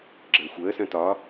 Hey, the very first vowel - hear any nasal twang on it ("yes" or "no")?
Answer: no